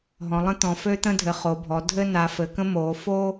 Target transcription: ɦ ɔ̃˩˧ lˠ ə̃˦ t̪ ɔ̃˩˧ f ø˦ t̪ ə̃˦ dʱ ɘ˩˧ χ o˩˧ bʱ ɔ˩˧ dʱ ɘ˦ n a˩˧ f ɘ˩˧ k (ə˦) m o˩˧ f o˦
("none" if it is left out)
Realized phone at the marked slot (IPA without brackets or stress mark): ə̃˦